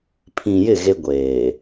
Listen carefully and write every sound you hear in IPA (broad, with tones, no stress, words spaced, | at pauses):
pʰĩ˨jɪ˦˨ ɣe˦ɡʷeː˨